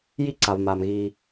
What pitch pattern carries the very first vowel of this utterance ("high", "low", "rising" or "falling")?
high